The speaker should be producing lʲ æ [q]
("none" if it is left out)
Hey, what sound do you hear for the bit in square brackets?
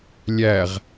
ʁ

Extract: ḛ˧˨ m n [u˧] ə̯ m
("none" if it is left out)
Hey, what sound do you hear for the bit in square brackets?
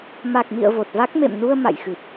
u˧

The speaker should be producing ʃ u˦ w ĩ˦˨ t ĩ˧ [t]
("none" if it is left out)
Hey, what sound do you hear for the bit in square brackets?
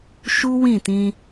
none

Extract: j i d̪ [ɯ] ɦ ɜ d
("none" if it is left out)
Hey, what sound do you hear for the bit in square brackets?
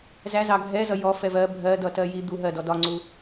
u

